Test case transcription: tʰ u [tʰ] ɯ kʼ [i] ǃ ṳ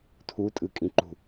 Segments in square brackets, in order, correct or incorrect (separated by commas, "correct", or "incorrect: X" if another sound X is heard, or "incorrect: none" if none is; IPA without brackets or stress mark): incorrect: tʼ, incorrect: ĩ